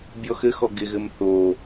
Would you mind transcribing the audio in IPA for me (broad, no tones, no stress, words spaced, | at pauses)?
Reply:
bʲɔxɘxɔ ɡɪɣɘm θo